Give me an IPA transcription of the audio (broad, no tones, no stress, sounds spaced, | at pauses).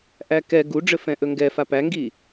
ʔ æ k ɛ ɡ u ɖ͡ʐ ɘ f ɛ̃ ʔ ɵ ŋ ɡ ɛ f a p æ ŋ ɡ i